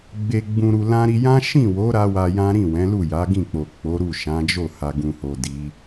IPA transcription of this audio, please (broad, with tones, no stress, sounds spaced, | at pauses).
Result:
ɡ͡b e˧ ɡ͡b ũ˧ ɾ u˧ l ã˦ ɾ i˧ j ã˦ ʃ ĩ˦˨ w o˨˦ ɾ a˦ w a˧ j ã˦ ɾ ĩ˦˨ w ɛ̃˨˦ l u˦˨ j a˨˦ ɡ ĩ˦˨ k͡p o˨ k͡p o˨˦ ɾ u˦˨ ʃ ã˨˦ d͡ʒ o˦˨ h a˨ ɡ ũ˨ h o˨ d i˨˦